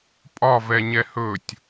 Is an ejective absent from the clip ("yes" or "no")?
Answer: no